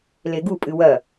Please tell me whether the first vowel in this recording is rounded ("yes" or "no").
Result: no